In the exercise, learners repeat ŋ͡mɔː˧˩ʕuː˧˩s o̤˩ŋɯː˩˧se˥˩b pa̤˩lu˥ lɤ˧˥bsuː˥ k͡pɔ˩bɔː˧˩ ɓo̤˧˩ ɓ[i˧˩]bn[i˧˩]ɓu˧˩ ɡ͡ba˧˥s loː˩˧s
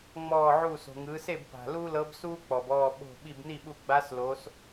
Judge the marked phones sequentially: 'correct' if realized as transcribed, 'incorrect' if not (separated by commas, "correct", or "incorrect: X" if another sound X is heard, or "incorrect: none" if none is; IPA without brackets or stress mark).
correct, incorrect: i˥˩